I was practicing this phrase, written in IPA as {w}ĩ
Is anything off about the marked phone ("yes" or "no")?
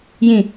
yes